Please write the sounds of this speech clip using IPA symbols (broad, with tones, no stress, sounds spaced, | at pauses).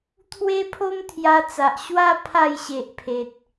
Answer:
t̪ʰ w e˧ pʰ o˧ m t̪ʰ j a˧ t͡s a˨ ʔ ɕ w a˦ pʰ a˥˧ j ɕ e˨ ʔ pʰ e˨ t̚